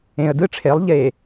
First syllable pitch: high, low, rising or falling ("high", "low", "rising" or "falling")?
low